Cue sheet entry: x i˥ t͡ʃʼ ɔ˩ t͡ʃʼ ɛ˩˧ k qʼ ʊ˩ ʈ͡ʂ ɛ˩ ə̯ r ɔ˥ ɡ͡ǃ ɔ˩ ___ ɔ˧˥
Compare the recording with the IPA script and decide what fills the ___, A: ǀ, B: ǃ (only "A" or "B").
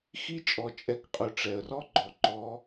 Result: B